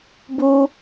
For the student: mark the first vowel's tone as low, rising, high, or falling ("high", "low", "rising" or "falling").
high